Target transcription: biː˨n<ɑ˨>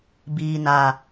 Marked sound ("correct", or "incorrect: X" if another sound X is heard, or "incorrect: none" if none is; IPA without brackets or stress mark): incorrect: a˨